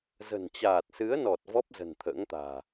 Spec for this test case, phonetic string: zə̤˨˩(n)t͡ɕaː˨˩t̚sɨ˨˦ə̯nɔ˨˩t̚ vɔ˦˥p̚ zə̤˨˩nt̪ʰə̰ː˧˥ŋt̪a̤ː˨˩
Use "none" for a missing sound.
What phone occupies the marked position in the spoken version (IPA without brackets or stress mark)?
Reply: n